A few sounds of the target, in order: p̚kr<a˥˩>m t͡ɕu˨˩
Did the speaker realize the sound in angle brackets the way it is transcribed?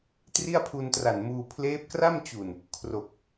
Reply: yes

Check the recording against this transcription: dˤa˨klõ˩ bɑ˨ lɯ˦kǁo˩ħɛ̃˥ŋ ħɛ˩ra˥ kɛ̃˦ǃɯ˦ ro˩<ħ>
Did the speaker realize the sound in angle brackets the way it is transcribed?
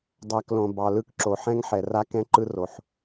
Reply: yes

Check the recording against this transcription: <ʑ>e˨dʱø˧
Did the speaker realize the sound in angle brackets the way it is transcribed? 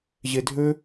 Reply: yes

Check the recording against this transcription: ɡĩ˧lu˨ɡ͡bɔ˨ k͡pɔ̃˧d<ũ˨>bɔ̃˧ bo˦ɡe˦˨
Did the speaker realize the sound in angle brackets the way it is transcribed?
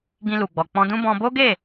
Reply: no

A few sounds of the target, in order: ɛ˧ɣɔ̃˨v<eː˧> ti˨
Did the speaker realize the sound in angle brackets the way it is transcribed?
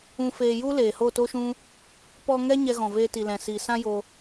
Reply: yes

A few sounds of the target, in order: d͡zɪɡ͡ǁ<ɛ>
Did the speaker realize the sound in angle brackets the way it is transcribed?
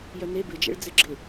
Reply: no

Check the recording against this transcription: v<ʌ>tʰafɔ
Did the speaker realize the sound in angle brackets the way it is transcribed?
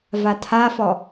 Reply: no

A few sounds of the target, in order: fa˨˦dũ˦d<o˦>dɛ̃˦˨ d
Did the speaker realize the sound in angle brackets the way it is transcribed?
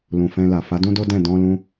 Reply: yes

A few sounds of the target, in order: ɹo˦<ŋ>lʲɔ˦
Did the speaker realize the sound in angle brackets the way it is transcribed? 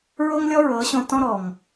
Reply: yes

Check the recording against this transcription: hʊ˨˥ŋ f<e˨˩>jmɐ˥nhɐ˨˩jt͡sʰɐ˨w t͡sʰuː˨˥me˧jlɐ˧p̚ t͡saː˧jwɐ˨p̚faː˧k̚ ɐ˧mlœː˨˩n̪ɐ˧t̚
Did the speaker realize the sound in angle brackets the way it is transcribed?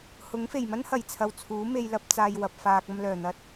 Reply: yes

